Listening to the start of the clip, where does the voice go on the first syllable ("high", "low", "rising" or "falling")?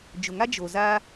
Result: low